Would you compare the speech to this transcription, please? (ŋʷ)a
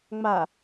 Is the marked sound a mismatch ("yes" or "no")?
yes